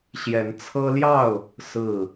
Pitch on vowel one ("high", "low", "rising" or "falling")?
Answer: rising